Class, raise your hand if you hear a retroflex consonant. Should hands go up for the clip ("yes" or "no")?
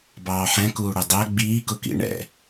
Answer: yes